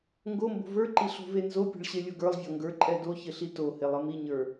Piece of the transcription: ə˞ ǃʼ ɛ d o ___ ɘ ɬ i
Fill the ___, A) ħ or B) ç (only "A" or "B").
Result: B